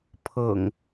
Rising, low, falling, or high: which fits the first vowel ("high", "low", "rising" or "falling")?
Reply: low